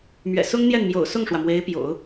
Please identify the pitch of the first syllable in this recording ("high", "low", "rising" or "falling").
low